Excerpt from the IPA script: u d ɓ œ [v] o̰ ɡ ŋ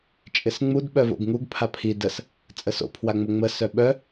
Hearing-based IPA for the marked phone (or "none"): v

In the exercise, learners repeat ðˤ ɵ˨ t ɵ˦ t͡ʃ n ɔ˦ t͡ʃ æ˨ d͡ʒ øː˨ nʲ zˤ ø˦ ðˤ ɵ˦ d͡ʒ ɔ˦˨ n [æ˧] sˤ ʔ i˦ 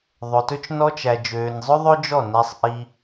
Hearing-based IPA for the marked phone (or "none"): æ˧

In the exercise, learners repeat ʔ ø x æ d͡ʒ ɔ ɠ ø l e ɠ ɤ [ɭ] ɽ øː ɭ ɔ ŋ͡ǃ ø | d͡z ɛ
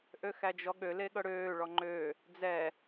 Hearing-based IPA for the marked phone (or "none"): none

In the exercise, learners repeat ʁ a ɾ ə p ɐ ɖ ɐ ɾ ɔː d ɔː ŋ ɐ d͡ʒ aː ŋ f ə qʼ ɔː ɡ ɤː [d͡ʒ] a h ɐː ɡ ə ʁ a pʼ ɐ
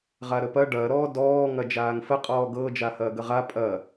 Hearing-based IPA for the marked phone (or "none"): d͡ʒ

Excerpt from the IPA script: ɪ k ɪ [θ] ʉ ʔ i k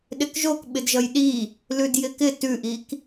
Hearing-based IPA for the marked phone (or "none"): t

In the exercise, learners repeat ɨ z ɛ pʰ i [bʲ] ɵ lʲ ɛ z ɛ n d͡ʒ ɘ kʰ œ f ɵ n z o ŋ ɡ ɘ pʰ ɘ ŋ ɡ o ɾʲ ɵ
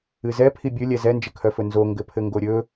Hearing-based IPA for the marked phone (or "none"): bʲ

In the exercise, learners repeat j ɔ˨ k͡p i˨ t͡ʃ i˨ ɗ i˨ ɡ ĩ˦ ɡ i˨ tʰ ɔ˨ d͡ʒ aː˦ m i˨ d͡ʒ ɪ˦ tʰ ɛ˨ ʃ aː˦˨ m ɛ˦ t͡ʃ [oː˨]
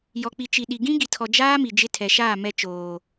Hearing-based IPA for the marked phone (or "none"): oː˨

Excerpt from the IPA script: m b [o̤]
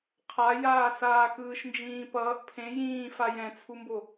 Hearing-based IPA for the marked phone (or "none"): o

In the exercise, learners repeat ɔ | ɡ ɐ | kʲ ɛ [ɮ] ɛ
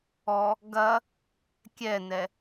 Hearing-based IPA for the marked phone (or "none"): n̪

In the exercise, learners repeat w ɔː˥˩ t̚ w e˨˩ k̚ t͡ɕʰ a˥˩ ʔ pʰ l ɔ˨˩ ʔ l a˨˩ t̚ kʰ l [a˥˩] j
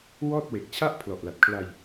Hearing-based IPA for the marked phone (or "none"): a˧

